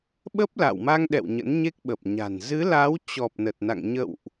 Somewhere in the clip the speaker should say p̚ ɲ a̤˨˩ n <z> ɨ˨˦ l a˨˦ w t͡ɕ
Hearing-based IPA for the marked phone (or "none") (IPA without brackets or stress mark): z